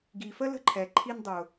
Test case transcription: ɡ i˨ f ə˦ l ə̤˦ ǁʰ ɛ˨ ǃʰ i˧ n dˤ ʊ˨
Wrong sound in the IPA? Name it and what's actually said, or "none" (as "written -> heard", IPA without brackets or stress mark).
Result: ǁʰ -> ǃʰ